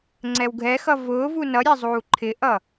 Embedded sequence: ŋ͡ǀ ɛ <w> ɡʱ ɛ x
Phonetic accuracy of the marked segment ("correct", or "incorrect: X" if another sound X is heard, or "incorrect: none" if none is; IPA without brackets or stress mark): correct